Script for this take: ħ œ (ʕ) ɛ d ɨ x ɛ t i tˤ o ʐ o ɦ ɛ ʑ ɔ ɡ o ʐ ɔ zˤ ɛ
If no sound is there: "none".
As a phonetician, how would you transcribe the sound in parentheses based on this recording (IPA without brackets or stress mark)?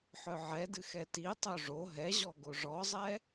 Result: ʕ